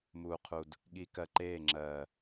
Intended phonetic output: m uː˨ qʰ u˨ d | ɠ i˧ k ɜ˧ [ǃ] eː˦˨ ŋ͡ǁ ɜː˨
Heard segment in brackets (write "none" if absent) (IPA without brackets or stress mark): ǃ